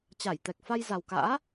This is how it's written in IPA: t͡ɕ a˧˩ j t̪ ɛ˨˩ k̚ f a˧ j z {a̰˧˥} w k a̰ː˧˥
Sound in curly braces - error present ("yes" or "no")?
yes